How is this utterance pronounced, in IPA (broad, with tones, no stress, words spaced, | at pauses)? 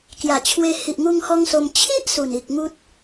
kja˨˩t͡ɕʰwe˧ hi˨ʔŋu˧ŋ hɔ˦ŋso˧m t͡ɕʰi˦ʔ su˨˩ni˨k̚ŋu˦t̚